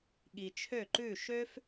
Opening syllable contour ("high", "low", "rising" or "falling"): low